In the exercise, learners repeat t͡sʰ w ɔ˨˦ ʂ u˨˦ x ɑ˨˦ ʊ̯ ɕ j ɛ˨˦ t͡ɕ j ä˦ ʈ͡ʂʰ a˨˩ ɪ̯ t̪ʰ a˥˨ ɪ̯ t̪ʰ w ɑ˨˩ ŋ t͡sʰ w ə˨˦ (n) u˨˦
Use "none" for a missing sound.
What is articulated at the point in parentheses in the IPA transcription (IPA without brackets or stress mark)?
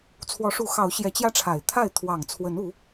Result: n